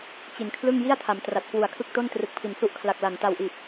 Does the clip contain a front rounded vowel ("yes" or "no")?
no